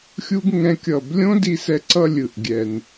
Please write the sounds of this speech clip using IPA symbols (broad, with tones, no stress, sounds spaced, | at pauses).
xʲ u˦ ɡ ŋ ɛ̃˦ kʲ ʌ˦˨ b lʲ õ˦ d i˧ s ɛ˧ ǀ ʌ˧ lʲ ɯ˨ ʔ ɡʲ ɛ˨ n